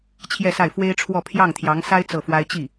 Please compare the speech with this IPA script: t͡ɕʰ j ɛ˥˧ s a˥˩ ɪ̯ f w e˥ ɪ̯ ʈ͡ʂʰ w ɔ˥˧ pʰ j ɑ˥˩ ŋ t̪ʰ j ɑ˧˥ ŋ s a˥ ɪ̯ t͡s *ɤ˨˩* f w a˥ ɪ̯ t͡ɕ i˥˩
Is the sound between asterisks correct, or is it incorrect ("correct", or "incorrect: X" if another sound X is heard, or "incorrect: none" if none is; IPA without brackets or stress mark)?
incorrect: ɤ˥˩